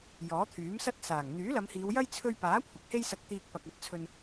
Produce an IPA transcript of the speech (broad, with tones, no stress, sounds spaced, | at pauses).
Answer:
j ɔː˨˥ t̪ʰ yː˨˥ m s ɐ˥ t̚ s aː˨˩ ŋ n̪ yː˨˥ l ɐ˨˧ m h iː˨˧ w j ɐ˥ j t͡sʰ ɵ˧ ɥ p aː˨˥ kʷʰ ɪ˨˥ k̚ h e˥ j s ɐ˧ k̚ t̪ iː˧ k̚ p ɐ˨ k̚ ɐ˨˥ t̚ t͡sʰ ɵ˧ n